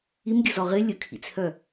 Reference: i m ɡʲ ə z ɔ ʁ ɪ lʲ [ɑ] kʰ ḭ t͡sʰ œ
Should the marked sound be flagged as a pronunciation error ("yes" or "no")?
yes